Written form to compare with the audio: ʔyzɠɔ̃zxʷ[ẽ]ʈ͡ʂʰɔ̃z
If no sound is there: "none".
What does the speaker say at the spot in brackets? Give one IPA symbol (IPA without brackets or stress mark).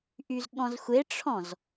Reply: e